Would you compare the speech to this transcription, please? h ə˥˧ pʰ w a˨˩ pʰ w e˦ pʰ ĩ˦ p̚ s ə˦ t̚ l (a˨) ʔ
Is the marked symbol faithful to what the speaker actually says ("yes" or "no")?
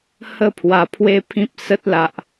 yes